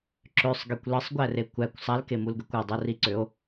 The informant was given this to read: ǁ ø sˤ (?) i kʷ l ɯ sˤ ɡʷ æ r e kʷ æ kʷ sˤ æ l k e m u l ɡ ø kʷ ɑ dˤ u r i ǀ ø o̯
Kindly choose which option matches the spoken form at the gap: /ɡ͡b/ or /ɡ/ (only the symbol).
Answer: ɡ